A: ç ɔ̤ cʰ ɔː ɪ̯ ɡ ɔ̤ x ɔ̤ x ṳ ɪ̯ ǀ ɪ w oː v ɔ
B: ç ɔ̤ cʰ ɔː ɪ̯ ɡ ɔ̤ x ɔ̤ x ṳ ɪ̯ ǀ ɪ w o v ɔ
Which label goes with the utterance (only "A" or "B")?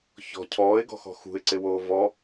A